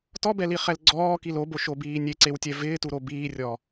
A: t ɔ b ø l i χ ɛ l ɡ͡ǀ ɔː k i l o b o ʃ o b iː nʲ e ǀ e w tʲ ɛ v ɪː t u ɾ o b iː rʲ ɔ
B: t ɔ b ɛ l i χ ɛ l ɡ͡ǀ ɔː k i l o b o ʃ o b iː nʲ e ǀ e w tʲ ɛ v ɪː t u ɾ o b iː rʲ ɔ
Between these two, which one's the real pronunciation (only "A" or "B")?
B